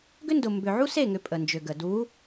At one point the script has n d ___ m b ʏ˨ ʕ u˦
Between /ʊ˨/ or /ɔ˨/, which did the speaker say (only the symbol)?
ʊ˨